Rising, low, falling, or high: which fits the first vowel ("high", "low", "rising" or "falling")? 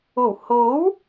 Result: low